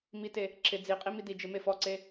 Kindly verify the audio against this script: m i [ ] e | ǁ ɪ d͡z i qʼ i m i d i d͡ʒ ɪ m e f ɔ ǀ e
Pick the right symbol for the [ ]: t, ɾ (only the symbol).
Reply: t